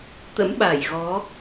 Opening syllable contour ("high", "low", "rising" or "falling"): rising